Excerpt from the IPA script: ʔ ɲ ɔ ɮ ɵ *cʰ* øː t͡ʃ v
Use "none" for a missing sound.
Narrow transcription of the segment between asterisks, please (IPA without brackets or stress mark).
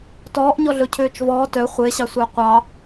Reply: cʰ